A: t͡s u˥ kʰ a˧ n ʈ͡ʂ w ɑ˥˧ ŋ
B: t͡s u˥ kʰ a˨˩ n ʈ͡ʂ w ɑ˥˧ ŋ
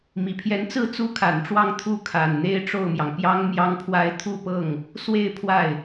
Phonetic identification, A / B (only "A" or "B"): B